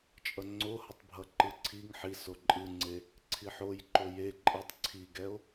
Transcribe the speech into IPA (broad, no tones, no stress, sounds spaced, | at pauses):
t͡ʃʼ ʌ ŋ͡ǀ o h ʌ tˤ bʱ ʌ ǃ ɯ ǀʰ i ŋ ħ i s o ǃʼ ɯ ŋ͡ǀ e | ǀʰ i ħ o j ǃ o j e ǃʼ ɯ tˤ ǀʰ i ɡ ɛ o̯